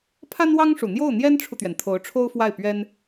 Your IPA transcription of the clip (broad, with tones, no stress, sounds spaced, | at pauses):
pʰ a˥ n w ɑ˥ ŋ ʂ u˨˩ n̪ j o˥˩ ʊ̯ n̪ j ɛ˥ n ʈ͡ʂʰ u˨ t̪ ɥ ɛ˩ n t̪ʰ o˧˥ ʊ̯ ʈ͡ʂʰ o˥ ʊ̯ f w a˥˩ ɪ̯ p ɥ ɛ˥ n